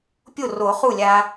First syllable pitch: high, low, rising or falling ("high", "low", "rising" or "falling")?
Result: falling